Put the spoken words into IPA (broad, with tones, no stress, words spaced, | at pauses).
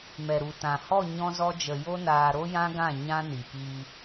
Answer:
mɛ˨ɾu˨ tã˨hɔ˦˨ ɲɔ̃˦zɔ˦d͡ʒə˧ jo˦naː˧ ɾo˦jã˦ɡã˦˨ ɲã˦ni˨piː˧